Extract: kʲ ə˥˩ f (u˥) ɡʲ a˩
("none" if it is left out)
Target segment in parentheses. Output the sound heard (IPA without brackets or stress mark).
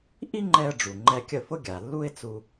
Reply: ʊ˥